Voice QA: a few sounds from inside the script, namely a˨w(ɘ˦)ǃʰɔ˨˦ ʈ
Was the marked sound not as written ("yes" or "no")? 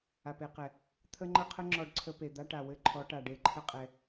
no